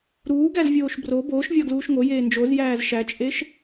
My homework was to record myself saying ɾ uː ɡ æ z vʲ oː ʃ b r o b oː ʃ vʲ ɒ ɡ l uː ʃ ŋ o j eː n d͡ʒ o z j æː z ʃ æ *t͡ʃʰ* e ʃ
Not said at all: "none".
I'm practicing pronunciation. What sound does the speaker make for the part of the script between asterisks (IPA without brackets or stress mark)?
t͡ʃʼ